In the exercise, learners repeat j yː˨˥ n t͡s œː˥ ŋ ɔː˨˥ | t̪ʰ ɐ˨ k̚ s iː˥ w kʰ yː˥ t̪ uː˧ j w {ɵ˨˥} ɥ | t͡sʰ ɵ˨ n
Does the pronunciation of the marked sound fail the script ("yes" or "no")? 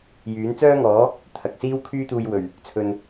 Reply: yes